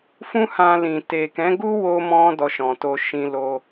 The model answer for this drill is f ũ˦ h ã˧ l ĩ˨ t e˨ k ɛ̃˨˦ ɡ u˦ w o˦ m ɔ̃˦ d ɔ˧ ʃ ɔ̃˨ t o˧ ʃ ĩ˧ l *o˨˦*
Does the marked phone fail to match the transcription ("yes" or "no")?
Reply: yes